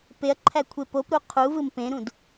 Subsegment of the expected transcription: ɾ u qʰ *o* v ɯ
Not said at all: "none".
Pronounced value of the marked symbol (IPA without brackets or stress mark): u